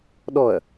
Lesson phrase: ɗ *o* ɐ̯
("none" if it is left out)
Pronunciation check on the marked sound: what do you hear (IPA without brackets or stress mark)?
ɔ